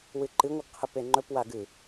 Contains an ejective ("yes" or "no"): no